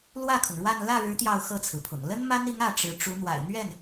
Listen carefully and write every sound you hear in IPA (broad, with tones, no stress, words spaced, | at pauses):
lwä˥˩kʰʊ˩ŋ ɻwa˥˧n lä˥˩ɻɻ̩˧˥ t̪jɑ˥˧ʊ̯xɤ˥˩t͡sʰɹ̩˩pʰʊ̰˨˩ŋ lə˥nma˥ni˧˥ŋ ä˥˩ʈ͡ʂɻ̩˧˥ ʈ͡ʂu˧˥n̪wa̰˨˩ɪ̯n̪ɥɛ˥˩n